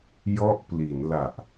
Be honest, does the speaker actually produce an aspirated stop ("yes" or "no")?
no